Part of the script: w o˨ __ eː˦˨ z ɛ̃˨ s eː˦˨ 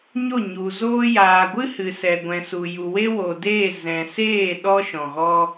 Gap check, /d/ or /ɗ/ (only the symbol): d